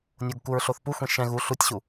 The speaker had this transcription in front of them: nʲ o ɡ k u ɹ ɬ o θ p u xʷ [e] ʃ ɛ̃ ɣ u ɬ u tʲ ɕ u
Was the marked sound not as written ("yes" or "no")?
yes